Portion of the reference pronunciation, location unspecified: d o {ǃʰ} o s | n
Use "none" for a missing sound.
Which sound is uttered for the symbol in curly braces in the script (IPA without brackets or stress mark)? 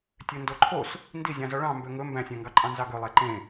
ǃʰ